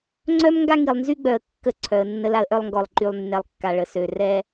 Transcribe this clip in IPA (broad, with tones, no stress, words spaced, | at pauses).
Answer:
ŋ͡ǀœ˦m ŋɡa˦ŋi˨lˠnzy˦ɡ͡bœ˨ə̯ kːə˦˨ǀʰœ˨ə̯ nːə˦la˦ə̯ʔœ˦lˠŋɡɔ˨lˠ ǃy˨lˠnːɛ˨lˠ kːa˨ɭə˨sø˨ rɛ˦